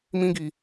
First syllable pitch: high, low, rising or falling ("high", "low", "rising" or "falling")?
high